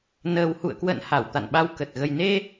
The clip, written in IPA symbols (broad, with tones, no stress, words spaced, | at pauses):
nəː˨˩whṵ˧˨ə̯kwə̰˧˨n ha˧˩wt̪a̰˧˨nɓa˧wkə˨˩t̚ ɣə˨˩jne˧